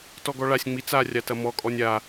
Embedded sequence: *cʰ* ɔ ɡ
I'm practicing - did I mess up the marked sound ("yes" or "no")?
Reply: yes